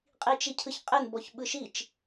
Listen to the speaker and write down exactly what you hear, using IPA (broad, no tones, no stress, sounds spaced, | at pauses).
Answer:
qʼ i t͡ʃ i cʰ ɯ ç qʼ ɪ n b ɔ ç ɓ ɯ ʃ i t͡ʃ